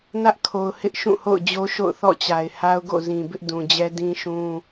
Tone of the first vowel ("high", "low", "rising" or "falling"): high